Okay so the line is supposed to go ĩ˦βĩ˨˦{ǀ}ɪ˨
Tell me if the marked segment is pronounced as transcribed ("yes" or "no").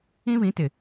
no